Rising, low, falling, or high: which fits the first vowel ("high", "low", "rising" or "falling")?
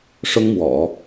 high